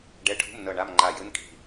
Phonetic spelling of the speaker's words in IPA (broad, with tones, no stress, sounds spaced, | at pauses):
ɖ ɛ˧˥˧ ʈʰ ṳ˧˥˧ m n ɤ˦˨ ɳ a˧˥˧ m ŋ͡ǃ a˦˨ j ɯ˧˥˧ n kʼ i̤˦˨